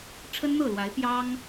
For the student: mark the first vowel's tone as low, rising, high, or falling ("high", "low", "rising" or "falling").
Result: high